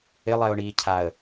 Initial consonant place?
alveolar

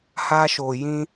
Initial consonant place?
glottal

